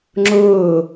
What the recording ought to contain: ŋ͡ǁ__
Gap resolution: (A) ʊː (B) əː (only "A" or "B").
A